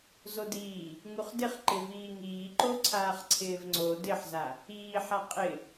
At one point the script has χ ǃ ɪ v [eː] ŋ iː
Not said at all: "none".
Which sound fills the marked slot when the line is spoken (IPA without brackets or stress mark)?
iː